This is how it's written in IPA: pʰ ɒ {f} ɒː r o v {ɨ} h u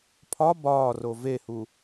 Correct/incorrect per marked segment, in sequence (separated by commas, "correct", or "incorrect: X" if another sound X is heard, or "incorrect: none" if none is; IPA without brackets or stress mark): incorrect: b, incorrect: e